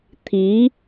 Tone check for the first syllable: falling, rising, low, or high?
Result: rising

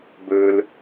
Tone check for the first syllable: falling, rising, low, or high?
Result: high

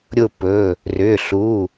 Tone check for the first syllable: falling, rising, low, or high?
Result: falling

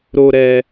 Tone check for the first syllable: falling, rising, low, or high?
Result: low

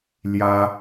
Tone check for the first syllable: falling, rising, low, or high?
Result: high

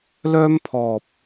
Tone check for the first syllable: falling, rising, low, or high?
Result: high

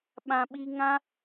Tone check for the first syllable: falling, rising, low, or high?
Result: low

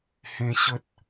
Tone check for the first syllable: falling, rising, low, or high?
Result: high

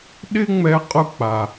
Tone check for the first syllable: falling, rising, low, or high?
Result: high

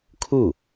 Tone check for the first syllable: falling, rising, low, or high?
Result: falling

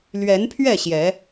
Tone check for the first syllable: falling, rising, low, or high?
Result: rising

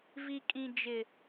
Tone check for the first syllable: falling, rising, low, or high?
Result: low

